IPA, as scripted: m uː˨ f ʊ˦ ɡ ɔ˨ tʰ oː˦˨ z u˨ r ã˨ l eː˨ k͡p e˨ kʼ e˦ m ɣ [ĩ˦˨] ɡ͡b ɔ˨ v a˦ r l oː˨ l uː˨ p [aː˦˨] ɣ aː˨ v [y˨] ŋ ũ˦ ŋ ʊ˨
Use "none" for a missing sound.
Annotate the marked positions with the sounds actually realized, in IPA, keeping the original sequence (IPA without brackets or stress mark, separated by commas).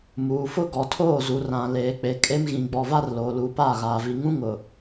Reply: ĩ˨, aː˦˨, i˨